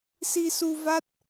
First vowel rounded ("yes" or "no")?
no